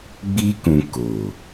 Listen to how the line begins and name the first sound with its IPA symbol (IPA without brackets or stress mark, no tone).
ɡ͡b